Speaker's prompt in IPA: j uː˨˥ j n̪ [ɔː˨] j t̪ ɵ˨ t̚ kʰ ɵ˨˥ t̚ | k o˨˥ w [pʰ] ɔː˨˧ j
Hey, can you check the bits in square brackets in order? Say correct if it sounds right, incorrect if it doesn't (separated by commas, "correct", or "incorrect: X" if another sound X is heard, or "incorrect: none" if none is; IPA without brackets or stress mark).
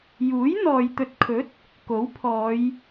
correct, correct